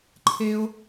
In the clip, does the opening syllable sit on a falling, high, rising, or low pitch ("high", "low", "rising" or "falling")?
high